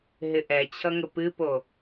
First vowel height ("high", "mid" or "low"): high